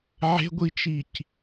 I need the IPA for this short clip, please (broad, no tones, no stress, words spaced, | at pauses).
ʕe̤ɡʷit͡ʃic